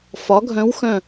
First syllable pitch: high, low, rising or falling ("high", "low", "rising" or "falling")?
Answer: rising